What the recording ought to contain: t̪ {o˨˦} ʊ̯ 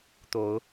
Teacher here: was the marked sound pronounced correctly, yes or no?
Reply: yes